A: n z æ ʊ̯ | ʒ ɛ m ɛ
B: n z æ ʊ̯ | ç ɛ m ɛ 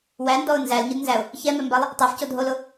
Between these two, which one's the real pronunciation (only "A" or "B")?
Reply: B